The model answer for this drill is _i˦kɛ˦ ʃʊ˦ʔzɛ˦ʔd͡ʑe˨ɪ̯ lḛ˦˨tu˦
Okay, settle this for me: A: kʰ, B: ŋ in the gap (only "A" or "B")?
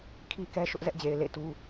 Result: A